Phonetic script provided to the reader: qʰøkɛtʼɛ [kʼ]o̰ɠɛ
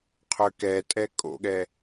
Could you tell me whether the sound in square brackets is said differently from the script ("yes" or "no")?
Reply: no